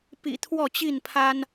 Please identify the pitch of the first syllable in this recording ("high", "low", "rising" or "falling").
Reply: low